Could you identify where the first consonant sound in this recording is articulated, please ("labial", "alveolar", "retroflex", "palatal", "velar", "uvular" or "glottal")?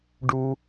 retroflex